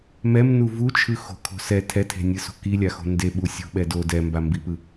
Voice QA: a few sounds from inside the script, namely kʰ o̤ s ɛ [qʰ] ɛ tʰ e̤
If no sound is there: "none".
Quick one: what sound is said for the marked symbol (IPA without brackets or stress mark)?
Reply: tʰ